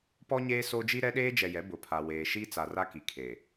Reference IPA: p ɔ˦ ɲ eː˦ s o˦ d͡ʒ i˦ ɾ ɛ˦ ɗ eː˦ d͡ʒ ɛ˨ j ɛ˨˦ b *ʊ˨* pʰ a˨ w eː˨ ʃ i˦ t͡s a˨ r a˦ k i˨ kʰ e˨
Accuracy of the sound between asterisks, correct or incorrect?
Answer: correct